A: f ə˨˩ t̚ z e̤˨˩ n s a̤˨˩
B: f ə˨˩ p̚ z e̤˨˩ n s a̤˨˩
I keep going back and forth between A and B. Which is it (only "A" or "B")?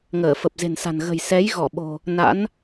B